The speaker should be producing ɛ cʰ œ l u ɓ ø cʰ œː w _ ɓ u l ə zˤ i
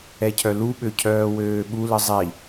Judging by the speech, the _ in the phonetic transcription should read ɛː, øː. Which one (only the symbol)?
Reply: øː